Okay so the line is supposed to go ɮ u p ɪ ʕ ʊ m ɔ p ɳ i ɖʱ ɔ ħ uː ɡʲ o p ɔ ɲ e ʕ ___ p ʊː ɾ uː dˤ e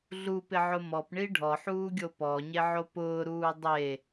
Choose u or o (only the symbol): o